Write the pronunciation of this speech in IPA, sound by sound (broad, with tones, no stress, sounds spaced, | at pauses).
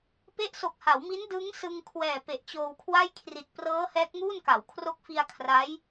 p e˦˥ ʔ s o˨˩ k̚ h a˩˦ w m i˦˥ n d ɯ˦˥ ŋ s ɯ˧ ŋ kʰ w ɛː˨˩ p e˨˩ ʔ t͡ɕ oː˧ w kʰ w a˥˩ j kʰ r i˨˩ t̚ p r ɤː˦˥ h ɛː˦˥ k̚ ŋ uː˥˩ n k a˩˦ w kʰ r o˦˥ k̚ f i˧ a̯ kʰ r a˦˥ j